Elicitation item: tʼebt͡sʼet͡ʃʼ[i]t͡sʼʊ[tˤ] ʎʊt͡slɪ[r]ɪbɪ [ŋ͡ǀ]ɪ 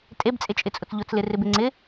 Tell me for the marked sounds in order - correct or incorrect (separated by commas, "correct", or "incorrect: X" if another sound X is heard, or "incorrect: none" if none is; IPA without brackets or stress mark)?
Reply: incorrect: ɪ, incorrect: t͡s, correct, correct